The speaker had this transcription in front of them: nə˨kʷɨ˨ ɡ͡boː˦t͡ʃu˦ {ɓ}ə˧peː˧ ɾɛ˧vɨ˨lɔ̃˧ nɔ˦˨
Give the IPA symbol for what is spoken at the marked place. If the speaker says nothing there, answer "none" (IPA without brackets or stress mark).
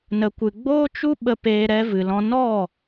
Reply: ɓ